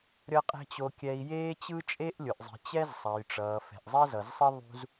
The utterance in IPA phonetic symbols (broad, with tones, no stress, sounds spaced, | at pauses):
ɾʲ ʌ˦ qʼ ɛ̤˦ t͡ɕ o˧ kʲ ɛ˧ i̯ j eː˦ t͡ɕ ɯ˦ t͡ʃʼ e˦ ʔ lʲ o˨ ʔ zˤ i̤˨ t͡ɕ ɛ˦ z sˤ a˨ j ʈ͡ʂ ʌː˨ f ɛ̤˨ ʔ zˤ ɛ˦ z ʌ˨ z sˤ i˦ ðˤ ṳ˦ z